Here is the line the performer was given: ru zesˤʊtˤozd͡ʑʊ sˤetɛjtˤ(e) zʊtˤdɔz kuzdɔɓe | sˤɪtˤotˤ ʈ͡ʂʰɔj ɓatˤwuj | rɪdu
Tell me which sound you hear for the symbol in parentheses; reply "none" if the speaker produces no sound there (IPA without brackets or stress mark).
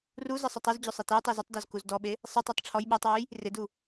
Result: e